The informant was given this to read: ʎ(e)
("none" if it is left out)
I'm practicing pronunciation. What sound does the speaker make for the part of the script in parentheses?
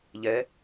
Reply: ɛ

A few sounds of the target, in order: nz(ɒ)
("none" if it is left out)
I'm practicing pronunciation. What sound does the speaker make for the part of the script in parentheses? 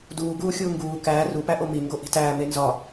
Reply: ɒ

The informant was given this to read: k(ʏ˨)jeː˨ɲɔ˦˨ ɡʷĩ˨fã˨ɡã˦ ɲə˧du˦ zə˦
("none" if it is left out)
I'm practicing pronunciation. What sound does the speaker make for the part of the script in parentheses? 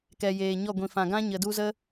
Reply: ɛ˨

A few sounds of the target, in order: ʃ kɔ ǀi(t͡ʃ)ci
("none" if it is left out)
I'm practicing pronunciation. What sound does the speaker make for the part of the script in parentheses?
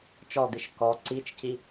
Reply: t͡ʃ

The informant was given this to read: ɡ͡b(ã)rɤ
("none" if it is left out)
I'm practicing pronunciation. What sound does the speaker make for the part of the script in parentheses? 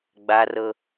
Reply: a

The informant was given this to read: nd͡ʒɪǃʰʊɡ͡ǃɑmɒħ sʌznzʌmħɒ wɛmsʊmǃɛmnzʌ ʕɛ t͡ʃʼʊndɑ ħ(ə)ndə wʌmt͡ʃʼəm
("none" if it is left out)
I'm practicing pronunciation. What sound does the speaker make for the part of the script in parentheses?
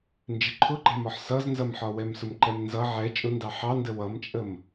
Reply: ɑ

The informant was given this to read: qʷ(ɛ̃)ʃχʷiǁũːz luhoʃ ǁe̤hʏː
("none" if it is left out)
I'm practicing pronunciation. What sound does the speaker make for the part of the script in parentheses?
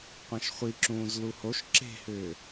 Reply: ɛ̃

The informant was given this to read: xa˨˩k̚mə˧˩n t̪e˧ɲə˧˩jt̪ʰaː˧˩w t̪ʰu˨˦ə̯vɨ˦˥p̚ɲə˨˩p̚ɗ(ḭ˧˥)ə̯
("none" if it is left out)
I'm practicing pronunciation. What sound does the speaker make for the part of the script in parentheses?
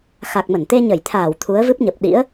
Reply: ḭ˧˥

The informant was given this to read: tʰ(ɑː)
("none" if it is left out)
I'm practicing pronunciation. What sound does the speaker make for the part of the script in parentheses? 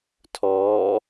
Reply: ɔː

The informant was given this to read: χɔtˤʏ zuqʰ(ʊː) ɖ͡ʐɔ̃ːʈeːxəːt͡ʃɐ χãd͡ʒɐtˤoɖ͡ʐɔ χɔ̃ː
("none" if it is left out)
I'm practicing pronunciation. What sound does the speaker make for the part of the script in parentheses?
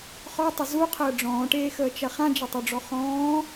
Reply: əː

